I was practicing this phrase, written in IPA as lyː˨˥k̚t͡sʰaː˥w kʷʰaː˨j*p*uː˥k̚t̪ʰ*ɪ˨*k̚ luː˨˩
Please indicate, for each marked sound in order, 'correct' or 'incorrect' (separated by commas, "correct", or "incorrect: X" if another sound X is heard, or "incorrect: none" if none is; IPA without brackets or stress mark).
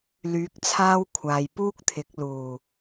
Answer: correct, incorrect: ɪ˨˥